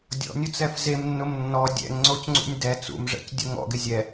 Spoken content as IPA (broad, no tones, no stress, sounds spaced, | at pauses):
dʲ ɔ̰ nʲ ʊ t͡s ɛ f z e m nː ʊ m nː ɔ dʲ ɛ̰ ŋ ŋ͡ǀ o c ŋ͡ǀ ṵ nʲ d ɛ t͡s ṵ m ʐ ɛ̰ c dʲ ʊ ŋ ɔ̰ ɡ ɪ zʲ ɛ